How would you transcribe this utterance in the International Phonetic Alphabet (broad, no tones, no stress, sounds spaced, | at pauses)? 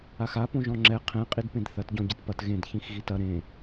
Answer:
a x a p õ ʒ ɔ̃ ŋ͡ǁ ɛ qʰ ɛ̃ qʼ i d p ẽ d θ ɐ t ɟ ɔ̃ ɟ ɨ t p ɐ t ɣ ẽ d ç ĩ x ɣ i t ɐ ɾ ẽ